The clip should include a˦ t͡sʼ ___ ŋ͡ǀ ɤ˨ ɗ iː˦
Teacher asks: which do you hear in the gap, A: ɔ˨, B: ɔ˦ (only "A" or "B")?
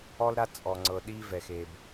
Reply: A